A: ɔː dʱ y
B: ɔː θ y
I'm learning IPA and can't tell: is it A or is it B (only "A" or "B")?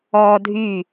A